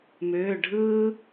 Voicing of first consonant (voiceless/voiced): voiced